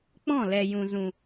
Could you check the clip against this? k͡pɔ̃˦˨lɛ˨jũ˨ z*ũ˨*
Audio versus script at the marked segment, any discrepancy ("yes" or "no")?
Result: no